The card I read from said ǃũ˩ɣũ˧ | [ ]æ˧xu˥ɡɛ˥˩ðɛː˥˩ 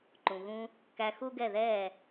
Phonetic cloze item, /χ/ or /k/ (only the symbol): k